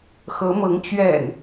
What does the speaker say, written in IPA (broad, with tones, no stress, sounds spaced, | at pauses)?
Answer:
x ɤ˨˦ m ɤ˨˦ ŋ t͡ɕ ɥ ɛ̰˨˩ n